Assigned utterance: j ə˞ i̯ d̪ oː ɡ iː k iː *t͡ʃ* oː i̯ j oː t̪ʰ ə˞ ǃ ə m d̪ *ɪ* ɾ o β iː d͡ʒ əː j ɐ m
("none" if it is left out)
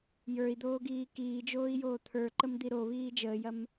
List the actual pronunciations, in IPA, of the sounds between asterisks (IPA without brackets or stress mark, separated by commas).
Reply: d͡ʒ, i